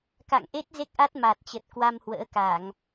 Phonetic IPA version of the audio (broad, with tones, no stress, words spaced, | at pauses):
ka̰˧˨ŋʔe˦˥t̚ ze˦˥k̚ʔa˦˥t̚ maː˨˩t̚t͡ɕə˨˩t̚ kwa˧mhwə̰ː˧˥ka˧˩˨ŋ